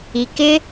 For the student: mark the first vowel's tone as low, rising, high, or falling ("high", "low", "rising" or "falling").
low